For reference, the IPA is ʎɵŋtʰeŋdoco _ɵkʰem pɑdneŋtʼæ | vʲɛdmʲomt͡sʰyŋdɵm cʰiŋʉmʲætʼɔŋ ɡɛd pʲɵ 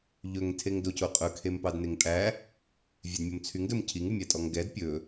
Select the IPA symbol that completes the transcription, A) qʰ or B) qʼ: B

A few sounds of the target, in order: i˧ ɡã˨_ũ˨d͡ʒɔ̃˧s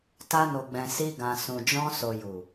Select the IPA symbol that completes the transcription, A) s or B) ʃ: A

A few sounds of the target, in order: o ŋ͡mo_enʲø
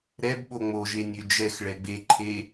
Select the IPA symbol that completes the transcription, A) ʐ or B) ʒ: B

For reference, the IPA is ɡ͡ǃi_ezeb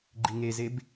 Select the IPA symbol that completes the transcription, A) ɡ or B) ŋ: B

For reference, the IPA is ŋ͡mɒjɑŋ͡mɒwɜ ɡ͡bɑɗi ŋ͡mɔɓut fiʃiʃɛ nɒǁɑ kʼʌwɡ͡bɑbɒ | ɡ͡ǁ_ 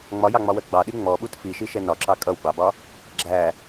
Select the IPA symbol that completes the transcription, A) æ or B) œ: A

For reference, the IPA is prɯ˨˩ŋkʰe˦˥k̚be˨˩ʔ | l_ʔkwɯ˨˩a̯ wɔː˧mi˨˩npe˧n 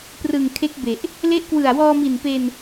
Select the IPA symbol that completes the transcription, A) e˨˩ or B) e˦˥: B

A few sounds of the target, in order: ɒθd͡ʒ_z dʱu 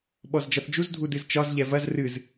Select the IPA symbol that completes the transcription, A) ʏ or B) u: B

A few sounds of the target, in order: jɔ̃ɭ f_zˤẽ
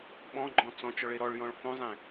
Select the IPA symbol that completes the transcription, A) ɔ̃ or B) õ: B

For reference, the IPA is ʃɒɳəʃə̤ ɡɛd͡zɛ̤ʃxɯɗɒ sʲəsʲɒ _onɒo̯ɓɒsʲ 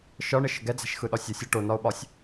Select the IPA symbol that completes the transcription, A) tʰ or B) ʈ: B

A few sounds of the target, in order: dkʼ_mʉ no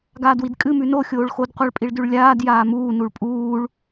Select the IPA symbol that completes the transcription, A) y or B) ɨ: B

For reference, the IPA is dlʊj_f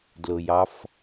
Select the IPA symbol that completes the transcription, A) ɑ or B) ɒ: A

